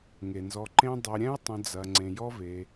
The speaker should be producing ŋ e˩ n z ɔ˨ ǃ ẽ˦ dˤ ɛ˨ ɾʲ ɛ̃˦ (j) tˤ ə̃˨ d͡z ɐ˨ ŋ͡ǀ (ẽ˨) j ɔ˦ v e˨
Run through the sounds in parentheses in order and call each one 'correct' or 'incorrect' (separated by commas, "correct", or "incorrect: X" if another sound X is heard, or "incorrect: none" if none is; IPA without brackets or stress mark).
correct, correct